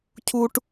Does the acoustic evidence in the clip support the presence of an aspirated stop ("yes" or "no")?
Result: yes